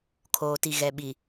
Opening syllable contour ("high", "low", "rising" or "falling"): low